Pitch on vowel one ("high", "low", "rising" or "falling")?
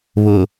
low